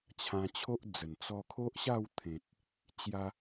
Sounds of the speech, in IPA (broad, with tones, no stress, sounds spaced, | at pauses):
t͡ɕʰ ã˧ t͡ɕʰ o˦ ʔ d͡z ə˨˩ n t͡s ɔ˧ kʰ o˦ ʔ ɕ a˥˧ w t̪ʰ ẽ˨ t̚ | t͡ɕ j a˧